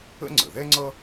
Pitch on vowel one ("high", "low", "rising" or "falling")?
high